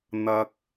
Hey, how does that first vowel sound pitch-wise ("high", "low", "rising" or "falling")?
high